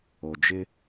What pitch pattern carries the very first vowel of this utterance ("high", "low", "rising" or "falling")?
low